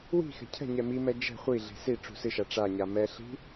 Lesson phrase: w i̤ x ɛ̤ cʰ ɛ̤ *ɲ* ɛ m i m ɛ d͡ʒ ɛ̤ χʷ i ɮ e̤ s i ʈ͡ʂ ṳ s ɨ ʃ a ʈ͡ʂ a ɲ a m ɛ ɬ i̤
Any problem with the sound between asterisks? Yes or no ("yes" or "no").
no